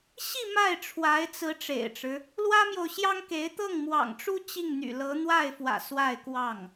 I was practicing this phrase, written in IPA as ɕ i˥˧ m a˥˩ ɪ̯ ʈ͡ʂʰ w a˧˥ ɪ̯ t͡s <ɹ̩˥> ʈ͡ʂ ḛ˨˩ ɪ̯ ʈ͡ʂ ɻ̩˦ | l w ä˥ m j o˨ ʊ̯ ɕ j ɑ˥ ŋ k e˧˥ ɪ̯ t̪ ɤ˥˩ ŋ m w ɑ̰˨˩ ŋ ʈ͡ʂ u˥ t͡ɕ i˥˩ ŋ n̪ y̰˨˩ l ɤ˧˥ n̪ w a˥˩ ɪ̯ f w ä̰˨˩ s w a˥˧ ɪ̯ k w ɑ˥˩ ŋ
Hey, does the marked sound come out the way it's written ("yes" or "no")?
no